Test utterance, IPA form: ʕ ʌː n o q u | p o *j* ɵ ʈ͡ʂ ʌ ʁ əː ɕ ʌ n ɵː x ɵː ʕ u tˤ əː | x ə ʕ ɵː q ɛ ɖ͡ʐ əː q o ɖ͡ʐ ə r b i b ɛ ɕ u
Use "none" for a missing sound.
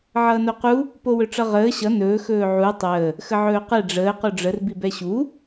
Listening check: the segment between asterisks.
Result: w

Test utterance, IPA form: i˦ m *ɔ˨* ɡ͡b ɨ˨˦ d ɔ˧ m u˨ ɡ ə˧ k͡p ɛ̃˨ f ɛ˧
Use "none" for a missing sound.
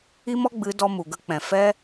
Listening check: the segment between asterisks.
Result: ɔ˦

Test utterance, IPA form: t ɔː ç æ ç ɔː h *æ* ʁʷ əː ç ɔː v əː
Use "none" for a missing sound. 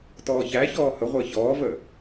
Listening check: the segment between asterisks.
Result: ə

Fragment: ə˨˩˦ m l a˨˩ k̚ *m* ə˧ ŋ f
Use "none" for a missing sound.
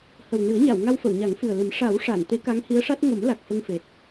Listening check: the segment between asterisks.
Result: f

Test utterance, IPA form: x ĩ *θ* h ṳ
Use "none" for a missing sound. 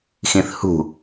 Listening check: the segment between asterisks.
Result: θ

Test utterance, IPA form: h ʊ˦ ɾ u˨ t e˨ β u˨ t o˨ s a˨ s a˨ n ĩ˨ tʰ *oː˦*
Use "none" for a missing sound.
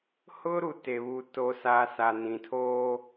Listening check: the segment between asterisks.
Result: oː˦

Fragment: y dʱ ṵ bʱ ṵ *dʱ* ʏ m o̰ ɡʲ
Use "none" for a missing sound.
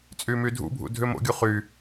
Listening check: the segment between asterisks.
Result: dʱ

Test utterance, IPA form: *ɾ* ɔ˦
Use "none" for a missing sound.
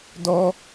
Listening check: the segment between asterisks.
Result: d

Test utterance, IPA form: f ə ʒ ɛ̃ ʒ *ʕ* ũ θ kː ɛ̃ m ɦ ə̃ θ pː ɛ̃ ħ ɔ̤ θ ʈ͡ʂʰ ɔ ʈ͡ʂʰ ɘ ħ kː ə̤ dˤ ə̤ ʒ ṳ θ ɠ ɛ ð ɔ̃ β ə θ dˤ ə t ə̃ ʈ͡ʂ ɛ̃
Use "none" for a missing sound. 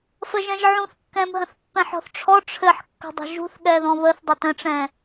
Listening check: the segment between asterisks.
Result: ʕ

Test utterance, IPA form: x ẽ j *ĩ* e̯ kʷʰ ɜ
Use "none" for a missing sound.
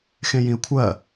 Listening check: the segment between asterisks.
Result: ĩ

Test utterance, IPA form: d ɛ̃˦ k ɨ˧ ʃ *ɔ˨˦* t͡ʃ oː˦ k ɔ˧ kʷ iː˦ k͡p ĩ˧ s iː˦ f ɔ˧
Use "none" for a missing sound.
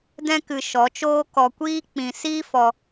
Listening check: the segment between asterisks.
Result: ɔ˨˦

